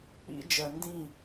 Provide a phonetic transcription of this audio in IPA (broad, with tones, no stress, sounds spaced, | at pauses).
k͡p ḭ˦ d͡ʒ ɜ˨ n d ĩ˦˨